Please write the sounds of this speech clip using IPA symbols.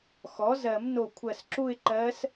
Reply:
xɔ˩˥zɜ˨˩˦mno˧˩ kʷʰɜ˧˩sǁu˥˧ɪ̯ǃɜ˧˥s

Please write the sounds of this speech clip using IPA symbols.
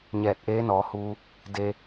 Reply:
ɲɛː˧˩t̚ ʔeː˧˥nɔː˩˧huː˧ | de˧

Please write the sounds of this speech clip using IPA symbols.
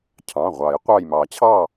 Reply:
cʰɑ̃˩˧˩ʁʷɑ˨˩˦j qʷɑ˧˩jmɑ˨˩˦t͡ɕʰɑ˥˨

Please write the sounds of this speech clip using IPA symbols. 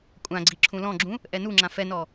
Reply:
kʷʼãɡ͡ǀi ǁʰũlɔ̃ɡ͡ǁũ | ʔɛnuŋ͡ǁã fɛnɔ

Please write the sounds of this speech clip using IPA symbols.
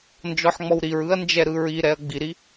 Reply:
nd͡ʒɔħŋ͡mɔwɾiɹɯɐ̯ nd͡ʒɛɾɯɹiɾɛɐ̯ ɡ͡biɾi

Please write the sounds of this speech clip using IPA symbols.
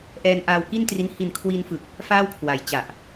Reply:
ʔɛː˧nʔaː˧wki˥˩ntri˦˥n hi˨˩nkʰwi˧nfɯ˨˩k̚ | faː˥˩wkʰwa˨˩jt͡ɕa˨˩ʔ

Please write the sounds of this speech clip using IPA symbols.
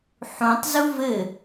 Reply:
ħũtˤzu vɘ

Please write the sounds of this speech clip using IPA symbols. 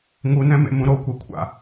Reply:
ŋunɛ̃mḛmũ ɾokʷɛkʷʰa̰

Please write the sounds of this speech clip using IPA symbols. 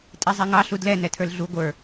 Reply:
tʼizˤɛŋɑ ɬudlɛ nɛtʰə˞lɮu ɡʷə˞

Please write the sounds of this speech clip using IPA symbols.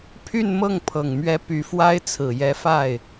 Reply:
pʰy˥˧nmɤ˥˩ŋpʰɤ˨˩ŋmɥɛ˧˥ py˧˥fwa˥ɪ̯ t͡sʰɹ̩˨˩jɛ˧˥ fa˥˩ɪ̯

